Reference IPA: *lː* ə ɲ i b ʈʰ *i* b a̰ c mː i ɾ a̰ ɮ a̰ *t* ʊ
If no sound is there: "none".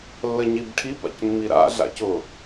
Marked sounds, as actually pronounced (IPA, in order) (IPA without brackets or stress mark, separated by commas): lː, i, c